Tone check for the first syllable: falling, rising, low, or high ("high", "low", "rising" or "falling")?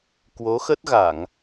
rising